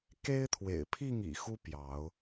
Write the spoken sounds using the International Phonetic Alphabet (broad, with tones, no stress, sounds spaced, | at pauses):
k e˦ ɪ̯ t̪ʰ w ḛ˨˩ ɪ̯ pʰ i˥˨ ŋ ḭ˨˩ x u˦ p j ɑ˨˦ ʊ̯